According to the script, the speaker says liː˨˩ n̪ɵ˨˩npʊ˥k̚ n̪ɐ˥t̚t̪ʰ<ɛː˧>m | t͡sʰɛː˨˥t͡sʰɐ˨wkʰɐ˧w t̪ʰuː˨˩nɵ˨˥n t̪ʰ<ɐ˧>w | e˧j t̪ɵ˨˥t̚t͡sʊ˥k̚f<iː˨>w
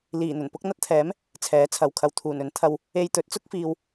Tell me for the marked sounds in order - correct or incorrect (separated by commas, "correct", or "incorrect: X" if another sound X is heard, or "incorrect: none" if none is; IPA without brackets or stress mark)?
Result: incorrect: ɛː˨˥, correct, correct